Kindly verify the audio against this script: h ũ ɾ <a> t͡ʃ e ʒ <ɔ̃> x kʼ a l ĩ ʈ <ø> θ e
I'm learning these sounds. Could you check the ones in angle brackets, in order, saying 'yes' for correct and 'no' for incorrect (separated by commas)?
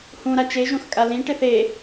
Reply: yes, no, no